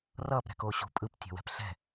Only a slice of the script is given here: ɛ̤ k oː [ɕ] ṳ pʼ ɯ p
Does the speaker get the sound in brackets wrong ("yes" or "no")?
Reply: no